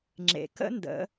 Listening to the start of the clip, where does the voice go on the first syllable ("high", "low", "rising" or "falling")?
low